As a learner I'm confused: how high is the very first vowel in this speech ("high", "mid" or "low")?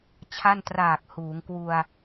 low